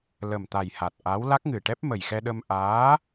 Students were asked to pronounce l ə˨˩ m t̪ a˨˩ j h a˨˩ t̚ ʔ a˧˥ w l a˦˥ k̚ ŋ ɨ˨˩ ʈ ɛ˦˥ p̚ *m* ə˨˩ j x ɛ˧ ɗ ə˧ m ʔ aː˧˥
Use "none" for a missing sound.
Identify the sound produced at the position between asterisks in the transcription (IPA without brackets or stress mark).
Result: m